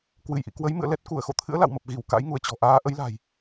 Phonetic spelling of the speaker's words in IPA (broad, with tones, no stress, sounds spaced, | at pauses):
k w ɨ˧˩ j ʔ ḭ˧˨ k w ə˨˦ j m ɨ̰˧˨ ə̯ l ɛ˦˥ t̚ k u˧˩ ə̯ x o̰˧˨ t̪ʰ ɨ̰˧˥ ə̯ l a̰˧˨ w m ə˨˩ p̚ ɣ i˧˩ w k a̰˧˥ j ŋ u˧˩ ə̯ t͡ɕ ɔ̤˨˩ ʔ aː˨˦ ʔ ə˨˦ j l a̤˨˩ j